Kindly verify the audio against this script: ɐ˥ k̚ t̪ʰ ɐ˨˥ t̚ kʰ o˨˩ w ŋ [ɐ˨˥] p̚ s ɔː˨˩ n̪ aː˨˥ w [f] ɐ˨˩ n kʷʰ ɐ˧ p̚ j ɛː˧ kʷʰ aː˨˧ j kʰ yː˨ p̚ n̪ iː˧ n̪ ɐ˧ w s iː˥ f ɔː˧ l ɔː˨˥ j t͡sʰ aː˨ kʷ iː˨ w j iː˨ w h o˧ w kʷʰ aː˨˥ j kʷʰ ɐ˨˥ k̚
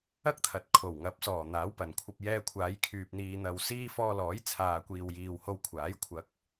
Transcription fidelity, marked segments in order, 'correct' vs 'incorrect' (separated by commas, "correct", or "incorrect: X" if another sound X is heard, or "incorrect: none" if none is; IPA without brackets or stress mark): correct, incorrect: p